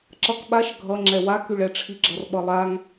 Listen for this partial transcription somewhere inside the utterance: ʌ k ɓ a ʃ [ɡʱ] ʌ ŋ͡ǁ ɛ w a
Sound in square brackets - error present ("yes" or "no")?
no